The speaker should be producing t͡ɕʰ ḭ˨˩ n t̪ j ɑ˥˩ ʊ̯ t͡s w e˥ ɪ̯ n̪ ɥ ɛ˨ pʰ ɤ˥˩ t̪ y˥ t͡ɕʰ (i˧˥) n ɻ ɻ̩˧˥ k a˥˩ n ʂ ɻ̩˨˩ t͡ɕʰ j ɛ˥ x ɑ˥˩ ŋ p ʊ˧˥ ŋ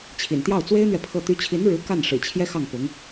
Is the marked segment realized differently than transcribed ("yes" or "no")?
no